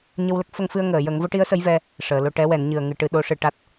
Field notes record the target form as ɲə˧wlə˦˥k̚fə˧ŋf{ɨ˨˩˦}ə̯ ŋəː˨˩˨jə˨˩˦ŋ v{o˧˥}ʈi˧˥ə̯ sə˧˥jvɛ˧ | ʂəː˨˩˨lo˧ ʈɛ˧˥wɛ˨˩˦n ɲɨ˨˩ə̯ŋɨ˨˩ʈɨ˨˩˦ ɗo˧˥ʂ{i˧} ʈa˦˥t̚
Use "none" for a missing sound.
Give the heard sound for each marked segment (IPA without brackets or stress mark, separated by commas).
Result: ɨ˧, o˧˥, ɨ˧